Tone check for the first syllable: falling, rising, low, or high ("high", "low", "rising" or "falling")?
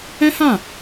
high